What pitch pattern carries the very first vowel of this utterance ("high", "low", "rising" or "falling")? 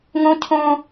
high